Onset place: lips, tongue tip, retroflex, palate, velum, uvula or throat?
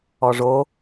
retroflex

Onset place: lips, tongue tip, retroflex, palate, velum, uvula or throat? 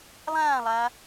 tongue tip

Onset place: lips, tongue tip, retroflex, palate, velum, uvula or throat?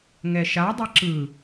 velum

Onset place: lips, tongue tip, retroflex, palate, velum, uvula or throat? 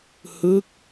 throat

